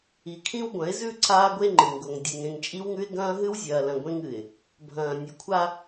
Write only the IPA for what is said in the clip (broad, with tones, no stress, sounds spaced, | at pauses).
i˨ kʰ ĩ˦ w ɡʷ ɐ̃˨˦ ɪ̯ z ʉ˦˨ ǀʰ aː˦ ɡʷ e˦ ŋ͡ǃ ɨ˨ ŋ ɡ o˨ ŋ dʲ e˨ ŋ ẽ˨ ŋ t͡ʃʼ i˦ w ŋ ʉ˦ ɪ̯ ɡ ɐ̃ː˦ ɦ ɨ˦ w zʲ ɐː˨ l ɐ̃˨ ɡʷ ẽ˦ ŋ ɨ˨ ɪ̯ | bʱ ɐ̃ː˨ nʲ ʉ˨ kʷʰ a˦